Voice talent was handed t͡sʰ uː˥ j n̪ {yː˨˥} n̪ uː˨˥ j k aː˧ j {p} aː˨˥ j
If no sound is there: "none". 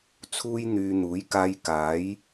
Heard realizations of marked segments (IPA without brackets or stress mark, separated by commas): yː˧, k